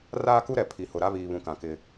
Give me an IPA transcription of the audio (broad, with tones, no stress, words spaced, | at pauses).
raː˦ku˦ɾɛ˨ pʰi˨hʊ˨ɾa˦ βiː˨βũ˨kã˨ kɪ˦